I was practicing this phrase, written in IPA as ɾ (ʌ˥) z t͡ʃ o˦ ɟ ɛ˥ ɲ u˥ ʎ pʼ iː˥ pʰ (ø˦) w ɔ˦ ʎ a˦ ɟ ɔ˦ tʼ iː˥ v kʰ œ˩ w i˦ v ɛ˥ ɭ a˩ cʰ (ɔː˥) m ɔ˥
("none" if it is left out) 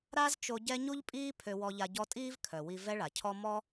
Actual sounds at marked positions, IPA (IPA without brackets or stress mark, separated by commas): a˥, ø˦, ɔ˥